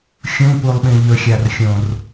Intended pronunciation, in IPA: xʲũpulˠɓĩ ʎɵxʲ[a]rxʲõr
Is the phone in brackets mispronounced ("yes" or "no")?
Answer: no